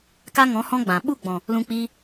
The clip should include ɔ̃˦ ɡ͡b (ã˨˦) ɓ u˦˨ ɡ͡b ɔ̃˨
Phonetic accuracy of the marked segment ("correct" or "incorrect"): incorrect